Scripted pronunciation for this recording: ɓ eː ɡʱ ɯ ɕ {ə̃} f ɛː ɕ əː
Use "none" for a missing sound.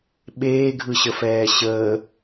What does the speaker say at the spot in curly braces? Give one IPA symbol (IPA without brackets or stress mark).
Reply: ə